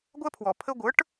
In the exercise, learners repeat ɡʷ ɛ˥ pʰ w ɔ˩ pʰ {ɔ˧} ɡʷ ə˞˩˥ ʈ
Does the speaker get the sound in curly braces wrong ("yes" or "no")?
yes